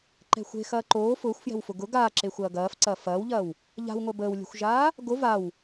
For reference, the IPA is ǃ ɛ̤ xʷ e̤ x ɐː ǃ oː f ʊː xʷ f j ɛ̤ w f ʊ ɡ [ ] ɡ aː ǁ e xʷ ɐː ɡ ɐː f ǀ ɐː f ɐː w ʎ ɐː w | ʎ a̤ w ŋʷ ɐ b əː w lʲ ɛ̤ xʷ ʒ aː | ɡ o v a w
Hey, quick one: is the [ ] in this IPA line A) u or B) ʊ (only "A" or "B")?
B